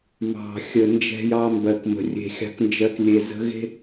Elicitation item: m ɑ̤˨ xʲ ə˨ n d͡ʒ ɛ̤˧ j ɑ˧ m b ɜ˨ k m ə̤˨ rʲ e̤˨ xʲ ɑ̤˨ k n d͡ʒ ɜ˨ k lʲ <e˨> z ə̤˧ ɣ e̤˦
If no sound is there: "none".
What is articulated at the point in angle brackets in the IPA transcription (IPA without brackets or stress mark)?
e˨